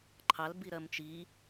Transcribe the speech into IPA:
ǃʰ ɑ l b i ɾ ɜ m t͡ʃ i

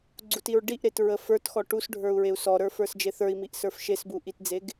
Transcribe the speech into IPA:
ɡ͡ǀ u t i ɹ ɖ i ʔ ɾ e t ɹ ə f ə˞ t x ɔ ʈ u s ɖʱ ə˞ u̯ ɹ e u̯ s ɔ ɾ ə˞ f ə˞ s d͡ʒ e θ ə˞ i̯ m i ʔ s ə˞ f ʃ e s b u ʔ i t d͡z e ɡ

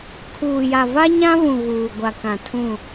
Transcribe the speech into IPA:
kʰ uː˨ j a˨ v a˦ ɲ ã˦ β ũ˨ ɣ uː˨ ɡʷ a˨ k ã˨ tʰ ũ˦˨

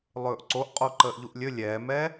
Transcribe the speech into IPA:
lˠ ɵː ʔ ǀ o ʔ qʼ o ǃ əː ʔ ʎ u ʔ lʲ ɵ lʲ ɛː m ɛː

